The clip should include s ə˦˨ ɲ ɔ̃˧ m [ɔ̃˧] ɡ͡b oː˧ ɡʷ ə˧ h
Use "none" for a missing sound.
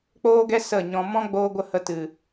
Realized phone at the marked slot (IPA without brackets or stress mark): ɔ̃˦